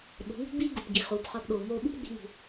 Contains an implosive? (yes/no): yes